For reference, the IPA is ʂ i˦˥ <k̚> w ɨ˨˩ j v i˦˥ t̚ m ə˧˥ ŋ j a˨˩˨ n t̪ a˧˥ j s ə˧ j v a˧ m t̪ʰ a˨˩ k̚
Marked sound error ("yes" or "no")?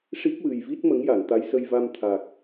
no